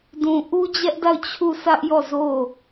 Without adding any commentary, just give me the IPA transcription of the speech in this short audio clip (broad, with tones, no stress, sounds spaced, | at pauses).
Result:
d ũ˨ ʔ u˦ d͡ʑ ɛ˦ ʔ d a˦˨ ʊ̯ t͡ɕʰ u˦˨ s ä˦ ʔ j ɔ˦˨ z o˦˨